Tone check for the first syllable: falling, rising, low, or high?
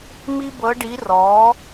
high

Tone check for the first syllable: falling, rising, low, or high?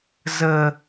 high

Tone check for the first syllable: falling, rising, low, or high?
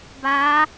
rising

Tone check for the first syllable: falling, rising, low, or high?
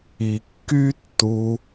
low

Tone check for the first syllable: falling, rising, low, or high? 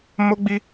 high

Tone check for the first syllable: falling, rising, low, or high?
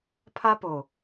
high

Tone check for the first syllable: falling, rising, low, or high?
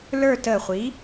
falling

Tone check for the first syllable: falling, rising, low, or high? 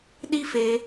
high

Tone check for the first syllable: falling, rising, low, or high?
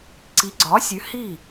rising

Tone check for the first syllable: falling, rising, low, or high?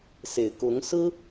low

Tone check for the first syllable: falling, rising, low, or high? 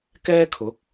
high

